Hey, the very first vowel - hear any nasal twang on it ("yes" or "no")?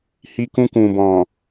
no